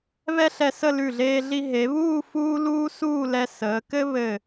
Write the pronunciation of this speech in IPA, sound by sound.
βɛ˥ɬɛ˧sə˥˧ lʉ˧˩ɮeː˧ɮi˧ ɦe˩˧βuː˥˧ fuː˥ luː˥suː˥˧lɛ˧ səː˩˧kɘ˥ βɘ˧˩

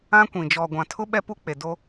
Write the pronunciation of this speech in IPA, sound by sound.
ã˦kʷĩ˨ d͡ʒɔ˨ɡʷã˨tʰʊ˦ ɓɛ˦pu˦k͡pe˨do˦

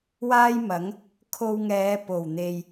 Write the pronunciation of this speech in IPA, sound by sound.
waː˥jmɐ˨˥ŋ | kʰo˧wŋɛː˨˧ po˨˩wn̪e˨j

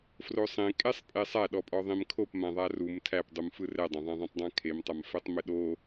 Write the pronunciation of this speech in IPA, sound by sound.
frosˤẽ kʼesˤpʼesˤæ ɗɔpʼɔðˤẽmkʰop mãðˤarum tʰæpdˤum fɯrɛdˤãðˤã ðˤẽtˤdˤãkʰemtˤam fɛtˤmɘɗo

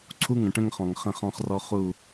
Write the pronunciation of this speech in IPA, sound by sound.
ǀʰu˦ŋə̃˨ʈə̃˦ŋ χɔ̃˨ŋχə̃˦˨χɔ̃˦χrɔ˦ χu˦˨

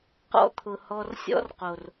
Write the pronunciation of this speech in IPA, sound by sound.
qɔ̰˦t̪ʰʊ˨hɔ˧r sʲɔ̰˦rqo˨r

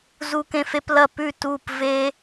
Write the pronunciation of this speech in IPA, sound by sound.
zu˦kẽ˦fe˦plɐ˥˨ pʉ˥˨ tu˥˨p ve˦

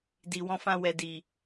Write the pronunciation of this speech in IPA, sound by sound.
di˨wɔ̃˧fã˧ wɛ˨di˨

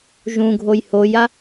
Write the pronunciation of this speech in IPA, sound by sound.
ʒũɡʱoj hoja

